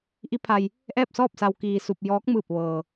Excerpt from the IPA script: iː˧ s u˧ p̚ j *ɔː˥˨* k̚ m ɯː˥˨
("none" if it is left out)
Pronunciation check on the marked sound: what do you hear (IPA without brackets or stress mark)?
ɔː˧˥